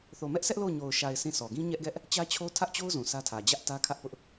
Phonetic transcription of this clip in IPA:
θ o˨ m ɛ˦ ʔ sʰ ɛ˦ ʔ l o˦˨ ʊ̯ ɲ o˨ ʊ̯ ʃ a˨ ɪ̯ s ĩ˦˨ s ɔ˨ ɡ ĩ˦ ɲ ɛ˦ ʔ ɡ ɛ˦ ʔ | t͡ɕ ä˦ t͡ɕʰ o˦ tʰ ä˦ ʔ t͡ɕ o˦ ʊ̯ z ũ˨ sʰ ä˦ tʰ ä˨ d͡ʑ ä˦ ʔ t ä˦ kʰ ä˦ ʔ p ʊ˦ ʔ

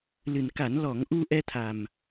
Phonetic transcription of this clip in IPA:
l ɨ˨˩ n k a˨˩˦ n l ɔ˨˩˦ ŋ ʔ u˧ ʔ ɛ˧ t̪ʰ a˨˩ m

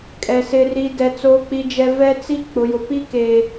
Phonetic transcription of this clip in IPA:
kʼ ɛ˨ s ɪ˨ r i˨ d ɛ˨ t͡s oː˨ k͡p i˨ d͡ʒ ɛ˨ v ɛ˦ t͡s i˦ k͡p ʊ˨ j ʊ˨ p i˦ k e˨

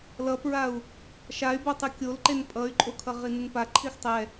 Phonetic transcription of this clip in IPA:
l ʌ p ɹ a u̯ | ʃ a y̯ b o tˤ ɯ kʲ o l ǃ e n pʼ ʌ y̯ ǃʼ o kʰ ʌ ʁ i n ɯ n p a ǃʰ i x tˤ ɛ

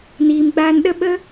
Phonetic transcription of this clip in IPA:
n iː˨ m ɡ͡b aː˧ n ɗ ə˦ ɓ ə˦

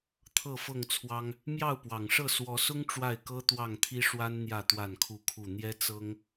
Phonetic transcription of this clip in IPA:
t̪ʰ ɤ˥˨ f ɤ˥˨ ŋ t͡sʰ w ɑ˦ ŋ | m j ɑ˥˨ ʊ̯ p w ɑ˨˩ ŋ ʂ ɤ˥˨ s w ɔ˨˦ s ʊ˦ ŋ ʈ͡ʂ w a˥˨ ɪ̯ k ɤ˦ t̪ w ɑ˥˨ ŋ t̪ʰ i˦ ʂ w a˦ n n̪ j ä˥˨ t̪ w a˥˨ n kʰ u˥˨ kʰ u˥˨ n̪ j ɛ˦ t͡s ɤ˦ ŋ

